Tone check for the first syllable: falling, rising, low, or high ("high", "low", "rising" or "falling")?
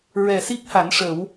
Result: low